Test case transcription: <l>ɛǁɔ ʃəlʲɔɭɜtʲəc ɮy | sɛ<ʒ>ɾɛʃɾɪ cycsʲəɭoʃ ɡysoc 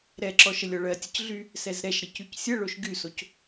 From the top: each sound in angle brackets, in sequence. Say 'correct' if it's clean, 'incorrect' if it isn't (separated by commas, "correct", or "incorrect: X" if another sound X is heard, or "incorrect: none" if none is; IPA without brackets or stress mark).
incorrect: ɾ, incorrect: z